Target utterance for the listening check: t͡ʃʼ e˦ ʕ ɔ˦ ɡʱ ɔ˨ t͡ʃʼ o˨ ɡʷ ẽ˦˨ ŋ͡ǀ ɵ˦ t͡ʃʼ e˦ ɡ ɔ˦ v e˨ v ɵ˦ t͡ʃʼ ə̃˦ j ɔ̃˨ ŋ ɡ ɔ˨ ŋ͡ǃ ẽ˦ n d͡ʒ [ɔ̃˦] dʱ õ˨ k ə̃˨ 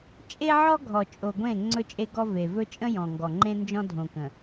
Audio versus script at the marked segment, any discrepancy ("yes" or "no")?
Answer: no